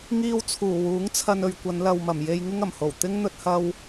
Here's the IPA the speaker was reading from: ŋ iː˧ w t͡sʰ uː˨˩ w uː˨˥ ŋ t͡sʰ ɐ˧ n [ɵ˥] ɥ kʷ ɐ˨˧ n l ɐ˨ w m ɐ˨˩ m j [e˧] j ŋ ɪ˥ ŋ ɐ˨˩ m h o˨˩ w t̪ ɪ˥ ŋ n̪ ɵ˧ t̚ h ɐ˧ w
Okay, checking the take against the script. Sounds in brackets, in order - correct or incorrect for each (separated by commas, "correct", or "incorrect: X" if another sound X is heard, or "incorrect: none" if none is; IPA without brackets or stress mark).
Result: incorrect: ɵ˨, correct